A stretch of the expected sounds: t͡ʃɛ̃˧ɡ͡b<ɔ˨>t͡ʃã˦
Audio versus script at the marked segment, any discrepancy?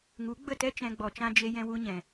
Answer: no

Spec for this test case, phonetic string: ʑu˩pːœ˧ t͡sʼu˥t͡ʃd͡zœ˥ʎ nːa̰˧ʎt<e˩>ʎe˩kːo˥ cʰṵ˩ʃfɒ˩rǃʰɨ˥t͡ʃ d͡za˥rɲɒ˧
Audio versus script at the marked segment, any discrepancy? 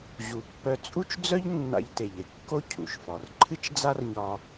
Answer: no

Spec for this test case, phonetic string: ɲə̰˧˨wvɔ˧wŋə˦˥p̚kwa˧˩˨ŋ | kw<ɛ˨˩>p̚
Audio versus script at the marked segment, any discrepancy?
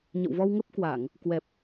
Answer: no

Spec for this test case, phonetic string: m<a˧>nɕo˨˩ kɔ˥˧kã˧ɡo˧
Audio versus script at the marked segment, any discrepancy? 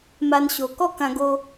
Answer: no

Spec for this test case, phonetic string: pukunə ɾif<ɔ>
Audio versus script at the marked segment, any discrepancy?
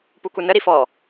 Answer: no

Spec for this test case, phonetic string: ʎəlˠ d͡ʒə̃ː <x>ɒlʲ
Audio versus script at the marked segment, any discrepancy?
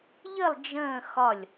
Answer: no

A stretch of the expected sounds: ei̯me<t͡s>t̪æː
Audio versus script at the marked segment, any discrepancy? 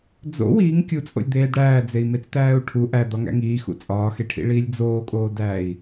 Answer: no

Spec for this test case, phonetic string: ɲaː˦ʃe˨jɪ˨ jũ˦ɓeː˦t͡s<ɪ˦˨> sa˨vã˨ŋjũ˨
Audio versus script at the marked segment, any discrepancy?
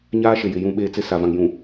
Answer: yes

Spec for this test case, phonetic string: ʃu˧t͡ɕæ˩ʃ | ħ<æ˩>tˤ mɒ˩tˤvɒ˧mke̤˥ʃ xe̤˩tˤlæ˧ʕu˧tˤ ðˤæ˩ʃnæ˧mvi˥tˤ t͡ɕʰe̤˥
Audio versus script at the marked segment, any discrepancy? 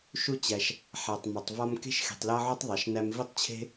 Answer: no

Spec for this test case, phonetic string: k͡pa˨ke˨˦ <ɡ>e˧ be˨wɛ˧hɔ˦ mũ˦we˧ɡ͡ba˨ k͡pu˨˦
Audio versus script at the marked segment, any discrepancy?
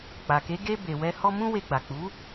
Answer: no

